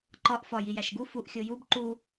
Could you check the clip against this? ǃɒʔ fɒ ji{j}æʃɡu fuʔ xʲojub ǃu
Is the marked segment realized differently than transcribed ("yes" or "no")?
no